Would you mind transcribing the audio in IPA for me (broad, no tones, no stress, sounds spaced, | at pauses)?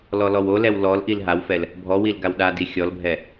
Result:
l ɔ l ɔ w o l ɛ w l ɔ l ʔ i l ɦ a w f ɛ l | bʱ ɔ w i l ɡ a w ɗ a d i xʲ ɔ l bʱ ɛ